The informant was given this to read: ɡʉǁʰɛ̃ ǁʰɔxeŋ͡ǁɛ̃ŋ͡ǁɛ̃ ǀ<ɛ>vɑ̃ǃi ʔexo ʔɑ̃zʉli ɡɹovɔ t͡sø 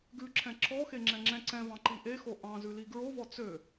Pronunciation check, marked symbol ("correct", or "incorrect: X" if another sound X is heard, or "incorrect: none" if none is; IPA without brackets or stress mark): incorrect: ɛ̃